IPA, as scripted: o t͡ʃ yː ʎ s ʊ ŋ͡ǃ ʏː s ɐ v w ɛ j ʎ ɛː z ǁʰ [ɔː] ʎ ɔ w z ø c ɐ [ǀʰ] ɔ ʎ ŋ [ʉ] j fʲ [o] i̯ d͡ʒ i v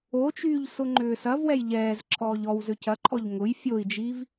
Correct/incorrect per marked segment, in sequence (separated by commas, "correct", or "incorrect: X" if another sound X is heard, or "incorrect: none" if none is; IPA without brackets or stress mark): correct, incorrect: ǃʰ, incorrect: ʊ, correct